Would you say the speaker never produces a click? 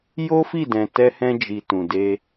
yes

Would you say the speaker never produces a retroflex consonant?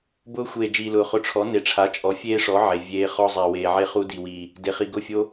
no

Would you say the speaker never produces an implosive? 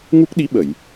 no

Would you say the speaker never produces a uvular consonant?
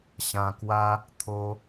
yes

